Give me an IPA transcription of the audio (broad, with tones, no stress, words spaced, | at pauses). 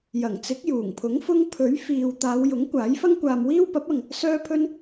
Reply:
jɐ˨˩ŋt͡sɪ˨˥k̚juː˨˩ŋpʰʊ˨˥ŋ fʊ˥ŋ pʰɵ˨˥ɥfiː˨w t̪aː˨˧wjʊ˨˥ŋ kʷaː˨˥jfɐ˥ŋkʷaː˧mwiː˥w pɐ˨˥p̚ɐ˨ŋ | sœː˥pʰɵ˥n